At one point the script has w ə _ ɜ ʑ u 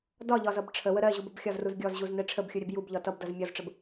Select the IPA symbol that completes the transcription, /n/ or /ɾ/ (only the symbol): ɾ